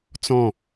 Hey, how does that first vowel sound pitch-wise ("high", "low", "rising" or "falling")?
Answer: falling